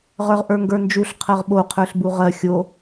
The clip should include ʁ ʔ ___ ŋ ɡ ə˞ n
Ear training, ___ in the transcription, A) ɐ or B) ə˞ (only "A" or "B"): B